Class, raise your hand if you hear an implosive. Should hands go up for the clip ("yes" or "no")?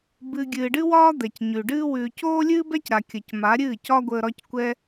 no